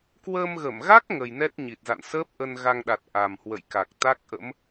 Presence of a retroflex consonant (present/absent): absent